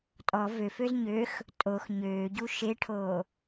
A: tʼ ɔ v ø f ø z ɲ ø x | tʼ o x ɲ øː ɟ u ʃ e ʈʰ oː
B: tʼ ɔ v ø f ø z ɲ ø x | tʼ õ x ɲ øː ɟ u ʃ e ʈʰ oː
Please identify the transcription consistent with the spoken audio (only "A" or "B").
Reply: A